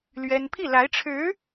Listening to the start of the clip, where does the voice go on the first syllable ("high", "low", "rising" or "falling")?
high